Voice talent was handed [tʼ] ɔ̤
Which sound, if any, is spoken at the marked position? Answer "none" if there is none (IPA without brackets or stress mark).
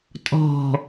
tʼ